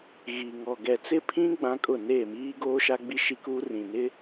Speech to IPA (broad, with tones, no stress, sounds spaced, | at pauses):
ɣ i˨ ŋ ɔ˨ ɡ ɛ˨ t͡s ɪ˦ pʰ ĩ˦ ɡ͡b ã˦ kʼ ʊ˦˨ n eː˦˨ m iː˦ ɡ oː˦ ʃ a˦ ɡ͡b i˦ ʃ i˦ k uː˦ r ĩ˨ n ɪ˦